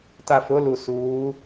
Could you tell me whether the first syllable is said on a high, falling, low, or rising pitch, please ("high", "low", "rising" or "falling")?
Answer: low